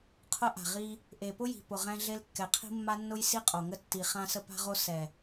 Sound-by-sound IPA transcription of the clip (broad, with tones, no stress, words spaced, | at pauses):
qʰʊ˦ʔa̤˨ʁi˦ | ʔe˨pʊ˦ji̤˨ pʊ˨ ʁɛ̃˦ɮe˦l kːɛ˨qʰi̤˦mːa˦nːʊ˦j si˦qʼo˨ŋə˦ tːi˨ χã˦sə˦pa̤˦ʁo˦ sɛ˨